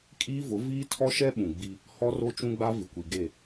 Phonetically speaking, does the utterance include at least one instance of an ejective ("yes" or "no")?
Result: yes